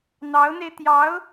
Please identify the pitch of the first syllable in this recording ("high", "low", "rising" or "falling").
rising